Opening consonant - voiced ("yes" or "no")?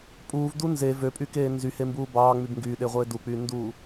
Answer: no